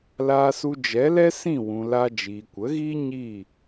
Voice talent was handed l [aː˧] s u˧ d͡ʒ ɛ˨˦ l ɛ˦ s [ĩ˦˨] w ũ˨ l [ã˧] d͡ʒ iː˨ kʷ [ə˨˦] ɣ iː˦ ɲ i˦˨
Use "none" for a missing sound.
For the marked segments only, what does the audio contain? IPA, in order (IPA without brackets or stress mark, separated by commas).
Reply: aː˧, ĩ˦˨, a˧, ə˨˦